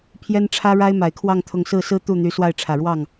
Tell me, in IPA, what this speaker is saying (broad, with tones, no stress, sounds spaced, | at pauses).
pʰ j ɛ˥ n ʈ͡ʂʰ ä˥ ɻ a˥ ɪ̯ m a˨˩ ɪ̯ kʰ w ɑ˥˧ ŋ t̪ʰ ʊ˥˧ ŋ s ɹ̩˥˩ s ɹ̩˥ t̪ u˥˩ n̪ y˧˥ s w a˥˩ ɪ̯ ʈ͡ʂʰ ä˨˩ ɻ w ɑ˥˩ ŋ